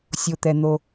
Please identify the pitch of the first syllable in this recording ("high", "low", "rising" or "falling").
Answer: low